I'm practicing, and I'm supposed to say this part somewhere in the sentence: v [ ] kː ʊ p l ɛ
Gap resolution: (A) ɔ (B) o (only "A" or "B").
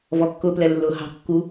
A